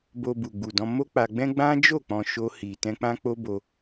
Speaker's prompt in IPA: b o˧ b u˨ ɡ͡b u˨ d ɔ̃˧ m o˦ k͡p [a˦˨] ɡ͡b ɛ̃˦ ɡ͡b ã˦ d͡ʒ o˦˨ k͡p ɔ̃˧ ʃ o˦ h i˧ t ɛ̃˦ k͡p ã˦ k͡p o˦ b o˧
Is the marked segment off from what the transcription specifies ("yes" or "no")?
yes